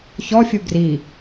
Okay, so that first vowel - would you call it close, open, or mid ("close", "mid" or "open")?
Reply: mid